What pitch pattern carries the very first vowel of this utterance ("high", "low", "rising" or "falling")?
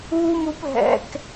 high